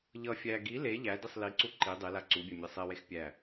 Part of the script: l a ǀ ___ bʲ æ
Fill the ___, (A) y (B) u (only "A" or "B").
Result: B